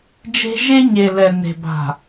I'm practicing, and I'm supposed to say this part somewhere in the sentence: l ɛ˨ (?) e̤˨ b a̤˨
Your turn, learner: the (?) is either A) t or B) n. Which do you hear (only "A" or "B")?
B